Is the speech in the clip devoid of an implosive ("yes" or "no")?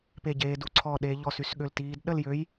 no